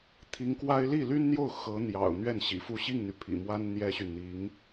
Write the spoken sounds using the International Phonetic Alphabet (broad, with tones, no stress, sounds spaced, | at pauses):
t̪ʰ i˧˥ ŋ k w a˥ ɪ̯ l i˥˩ l y˥ n n̪ j o˥˩ ʊ̯ x ɤ˧˥ n̪ j ɑ̰˨˩ ʊ̯ n̪ ɥ ɛ˥˩ n ɕ ḭ˨˩ f u˥˧ ɕ i˥˩ ŋ n̪ y˩ pʰ ḭ˨˩ m w a˥ n n̪ j ɛ˥ ɕ y˨ n n̪ i˧˥ ŋ